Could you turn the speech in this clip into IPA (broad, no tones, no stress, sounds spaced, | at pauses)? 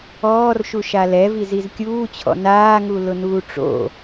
ɔː r ʃ u ʃ a l ɛ v i z i z kʲ uː t͡ɕʰ ɔ̰ n aː ŋ u l ʊ n uː ʈ͡ʂ o̰